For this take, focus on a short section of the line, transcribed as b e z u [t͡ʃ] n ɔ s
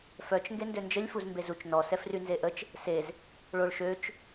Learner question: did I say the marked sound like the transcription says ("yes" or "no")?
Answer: yes